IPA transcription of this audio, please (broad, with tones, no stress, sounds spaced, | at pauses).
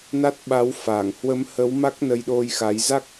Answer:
n a˦˥ t̚ ɓ a˨˦ w f aː˧˩ ŋ h w ə˨˦ m h ə˨˦ w m a˦˥ k̚ n ə˧ j ɗ o˧ j x a˨˦ j z a˦˥ k̚